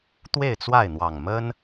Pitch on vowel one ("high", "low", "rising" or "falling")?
falling